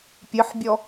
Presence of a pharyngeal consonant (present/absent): present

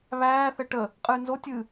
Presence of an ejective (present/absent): present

